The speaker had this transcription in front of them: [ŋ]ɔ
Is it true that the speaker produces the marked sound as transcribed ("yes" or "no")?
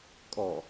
no